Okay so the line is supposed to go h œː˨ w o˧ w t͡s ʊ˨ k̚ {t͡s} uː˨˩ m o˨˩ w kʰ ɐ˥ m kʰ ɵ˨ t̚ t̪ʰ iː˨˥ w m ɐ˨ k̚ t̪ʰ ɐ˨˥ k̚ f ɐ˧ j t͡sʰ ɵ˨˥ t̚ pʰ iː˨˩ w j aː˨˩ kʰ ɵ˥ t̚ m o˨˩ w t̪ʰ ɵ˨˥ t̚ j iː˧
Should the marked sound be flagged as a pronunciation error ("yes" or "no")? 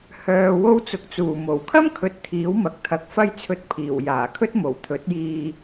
no